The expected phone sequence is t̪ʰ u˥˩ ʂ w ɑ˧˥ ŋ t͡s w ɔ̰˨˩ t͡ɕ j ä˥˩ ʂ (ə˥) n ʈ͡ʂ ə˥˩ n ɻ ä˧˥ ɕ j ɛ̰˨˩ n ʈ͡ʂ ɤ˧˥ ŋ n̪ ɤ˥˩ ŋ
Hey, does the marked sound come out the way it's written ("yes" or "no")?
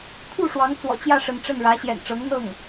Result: no